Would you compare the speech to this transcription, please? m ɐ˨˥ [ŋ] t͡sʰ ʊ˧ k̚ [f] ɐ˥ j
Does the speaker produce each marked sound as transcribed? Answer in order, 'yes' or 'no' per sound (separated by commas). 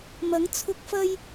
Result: yes, yes